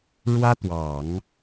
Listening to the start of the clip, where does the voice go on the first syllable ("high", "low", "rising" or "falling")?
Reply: high